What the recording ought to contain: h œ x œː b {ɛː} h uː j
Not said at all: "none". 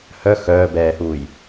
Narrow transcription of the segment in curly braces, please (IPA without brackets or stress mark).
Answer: ɛː